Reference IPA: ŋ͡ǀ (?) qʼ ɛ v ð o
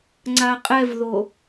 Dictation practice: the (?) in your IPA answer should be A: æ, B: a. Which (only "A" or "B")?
B